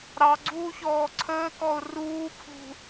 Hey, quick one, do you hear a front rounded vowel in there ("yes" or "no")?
no